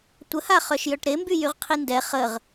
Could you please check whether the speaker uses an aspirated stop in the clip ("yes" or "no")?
yes